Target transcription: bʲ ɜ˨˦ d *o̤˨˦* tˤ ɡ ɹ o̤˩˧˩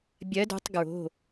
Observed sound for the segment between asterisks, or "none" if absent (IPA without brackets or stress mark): o̤˨˦